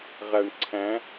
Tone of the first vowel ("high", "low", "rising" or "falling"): low